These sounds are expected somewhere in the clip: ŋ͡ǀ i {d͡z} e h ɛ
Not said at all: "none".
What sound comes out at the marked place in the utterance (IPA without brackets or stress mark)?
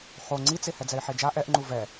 t͡s